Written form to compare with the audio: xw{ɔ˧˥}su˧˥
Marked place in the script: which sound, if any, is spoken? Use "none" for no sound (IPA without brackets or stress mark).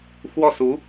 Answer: ɔ˥˩